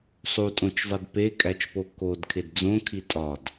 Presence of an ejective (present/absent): present